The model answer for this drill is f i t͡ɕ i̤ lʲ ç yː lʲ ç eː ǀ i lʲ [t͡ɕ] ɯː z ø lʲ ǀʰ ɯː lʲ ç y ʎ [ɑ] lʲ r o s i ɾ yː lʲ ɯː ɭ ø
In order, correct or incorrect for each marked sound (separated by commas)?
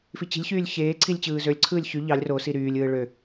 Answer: correct, correct